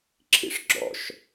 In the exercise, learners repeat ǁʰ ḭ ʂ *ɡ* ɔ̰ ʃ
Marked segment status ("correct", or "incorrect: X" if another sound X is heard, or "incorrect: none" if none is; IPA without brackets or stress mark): incorrect: ɡ͡ǁ